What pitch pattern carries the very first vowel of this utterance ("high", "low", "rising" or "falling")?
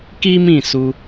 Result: high